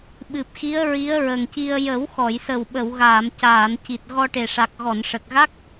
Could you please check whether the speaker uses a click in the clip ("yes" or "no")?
no